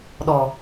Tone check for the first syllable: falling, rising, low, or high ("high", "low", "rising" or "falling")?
low